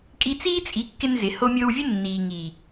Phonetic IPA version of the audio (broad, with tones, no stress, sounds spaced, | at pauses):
kʼ i˧ t͡s iː˦ t͡sʼ i˨˦ kː ɪ˧ n z ɪ˨ h o˧ mʲ o˧ w vʲ ə˦ nː iː˨ ŋ i˨